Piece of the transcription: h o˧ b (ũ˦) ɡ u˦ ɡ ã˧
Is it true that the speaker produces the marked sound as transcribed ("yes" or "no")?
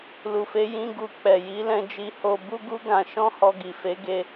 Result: no